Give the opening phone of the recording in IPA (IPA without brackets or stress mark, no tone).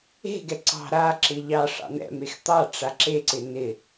e̤